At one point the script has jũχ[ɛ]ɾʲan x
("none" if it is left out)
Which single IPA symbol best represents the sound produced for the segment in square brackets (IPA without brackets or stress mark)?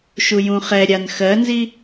ɛ